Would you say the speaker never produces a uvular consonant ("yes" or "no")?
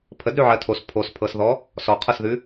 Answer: no